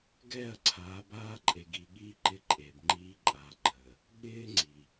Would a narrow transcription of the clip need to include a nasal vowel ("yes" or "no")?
no